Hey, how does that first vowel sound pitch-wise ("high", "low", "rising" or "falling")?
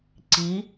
rising